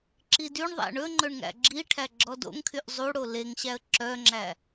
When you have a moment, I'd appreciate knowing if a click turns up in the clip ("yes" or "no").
yes